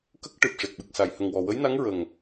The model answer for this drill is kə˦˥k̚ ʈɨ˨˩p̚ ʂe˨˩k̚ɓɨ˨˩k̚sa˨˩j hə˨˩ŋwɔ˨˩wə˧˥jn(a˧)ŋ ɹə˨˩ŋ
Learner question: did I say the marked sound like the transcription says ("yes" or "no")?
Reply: no